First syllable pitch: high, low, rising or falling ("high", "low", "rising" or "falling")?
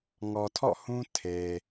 low